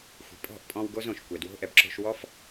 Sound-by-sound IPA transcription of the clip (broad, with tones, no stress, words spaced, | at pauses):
xʷi̤˨ pʼɔ̤˦˨ʔpʼɔ̃˧w ɡo˦zõ˨ʃ kʷɛ˨dwo̤˦ʔɛ˨b ǁo̤˧ʃwɔ˦f